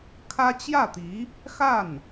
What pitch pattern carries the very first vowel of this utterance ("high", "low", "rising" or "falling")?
high